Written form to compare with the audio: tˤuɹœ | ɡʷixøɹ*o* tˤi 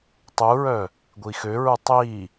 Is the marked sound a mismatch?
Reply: yes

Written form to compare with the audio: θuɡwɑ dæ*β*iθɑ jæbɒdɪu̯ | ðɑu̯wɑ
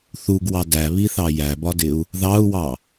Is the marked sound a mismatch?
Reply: no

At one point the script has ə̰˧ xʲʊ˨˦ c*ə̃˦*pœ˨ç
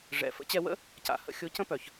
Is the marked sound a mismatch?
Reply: no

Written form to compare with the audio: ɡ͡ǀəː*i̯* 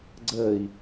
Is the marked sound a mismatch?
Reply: no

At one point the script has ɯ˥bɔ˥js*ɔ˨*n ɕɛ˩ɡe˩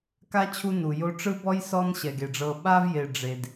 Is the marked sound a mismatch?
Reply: yes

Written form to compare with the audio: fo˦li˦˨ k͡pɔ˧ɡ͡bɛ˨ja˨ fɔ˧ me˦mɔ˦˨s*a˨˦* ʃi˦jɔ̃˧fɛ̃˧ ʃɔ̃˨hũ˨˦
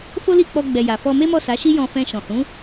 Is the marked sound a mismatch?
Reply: no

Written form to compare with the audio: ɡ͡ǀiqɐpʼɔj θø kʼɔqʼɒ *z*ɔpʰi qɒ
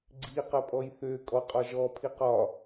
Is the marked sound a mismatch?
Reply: yes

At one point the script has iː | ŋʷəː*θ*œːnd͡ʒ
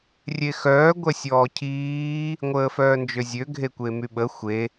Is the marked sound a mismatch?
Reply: yes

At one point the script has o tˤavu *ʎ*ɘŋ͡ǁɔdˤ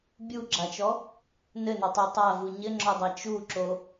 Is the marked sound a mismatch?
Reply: yes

